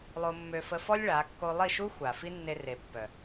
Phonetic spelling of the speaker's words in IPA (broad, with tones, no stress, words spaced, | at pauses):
lˠo˧mːø˧fə˧fɔ˦lʲ ɭa˨˦kːo˦ lˠi˦˨ʃu˦ xʷa˨ fi˦nːe˧ re˨pːœ˨